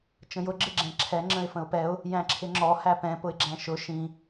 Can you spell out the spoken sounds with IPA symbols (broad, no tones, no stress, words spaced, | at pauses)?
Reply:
t͡ʃə̃jʊ ɡ͡ǁɪɡ͡ǁɛ̃ǁʰɛ ŋ͡ǁə̃ɪ̯fə̃ʊ̯pɛʊ̯ | jæ̃ǁʰɪŋ͡ǁɔ hæpɛ̃ pʊɪ̯ɡ͡ǁæ̃ʃʊ ʃĩ